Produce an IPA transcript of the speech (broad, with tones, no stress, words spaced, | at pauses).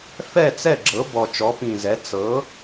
fɛ˥˩t͡sɛ˥˩ɡ͡ǁɤ˩˥ bɔ˨˩t͡ʃɔ˩˥pĩ˨˩zɛ˩˥ t͡sɤ˩˥